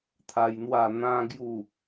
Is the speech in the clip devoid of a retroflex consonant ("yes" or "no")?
yes